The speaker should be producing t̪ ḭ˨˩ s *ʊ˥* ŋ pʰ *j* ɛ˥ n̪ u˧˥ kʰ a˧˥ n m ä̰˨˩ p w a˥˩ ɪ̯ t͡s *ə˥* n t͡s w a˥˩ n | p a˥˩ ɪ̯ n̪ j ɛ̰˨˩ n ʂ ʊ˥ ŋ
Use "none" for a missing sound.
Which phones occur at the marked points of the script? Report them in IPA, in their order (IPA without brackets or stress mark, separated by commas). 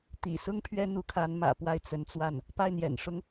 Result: ʊ˥, ɥ, ə˧˥